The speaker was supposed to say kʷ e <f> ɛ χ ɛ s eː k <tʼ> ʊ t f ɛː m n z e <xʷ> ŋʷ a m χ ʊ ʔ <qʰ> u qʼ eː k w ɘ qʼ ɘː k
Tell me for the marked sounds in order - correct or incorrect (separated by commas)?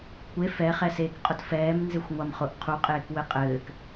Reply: correct, incorrect, correct, correct